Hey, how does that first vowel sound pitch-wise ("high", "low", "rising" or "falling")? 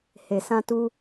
low